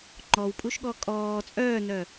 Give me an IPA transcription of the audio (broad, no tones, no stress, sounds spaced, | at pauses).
ŋ͡ǃ ɔ w pʼ u ʃ ɠ ɔ kʼ ɔː t͡sʼ œː n œ